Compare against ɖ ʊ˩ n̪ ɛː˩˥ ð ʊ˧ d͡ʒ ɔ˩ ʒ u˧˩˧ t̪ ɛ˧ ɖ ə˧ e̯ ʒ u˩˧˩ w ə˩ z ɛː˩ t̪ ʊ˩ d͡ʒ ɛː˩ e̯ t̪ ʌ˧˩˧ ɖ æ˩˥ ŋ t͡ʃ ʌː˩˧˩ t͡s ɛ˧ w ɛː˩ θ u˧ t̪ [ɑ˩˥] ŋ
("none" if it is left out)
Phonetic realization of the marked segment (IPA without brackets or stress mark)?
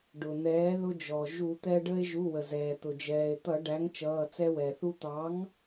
ɑ˩˥